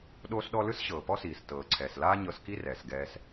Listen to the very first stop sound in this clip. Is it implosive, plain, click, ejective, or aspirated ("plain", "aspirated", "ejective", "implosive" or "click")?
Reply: implosive